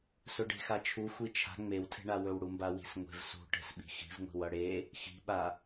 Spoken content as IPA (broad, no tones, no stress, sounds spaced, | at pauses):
s ɵ ɖ e̤ x a t͡ʃʰ u xʷ i t͡ʃʰ a̤ ŋ͡m e w tʰ e̤ ɳ a w ɵ w ɽ u m b a w i̤ s ŋʷ e̤ v s ṳ ʈ e̤ s ɓ i̤ x i̤ v ŋʷ i̤ w ʌ ɽ e | x i̤ ɓ a